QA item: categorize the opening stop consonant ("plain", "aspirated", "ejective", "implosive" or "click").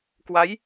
plain